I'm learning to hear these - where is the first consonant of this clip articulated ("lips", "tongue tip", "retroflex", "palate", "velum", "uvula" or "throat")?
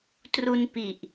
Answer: tongue tip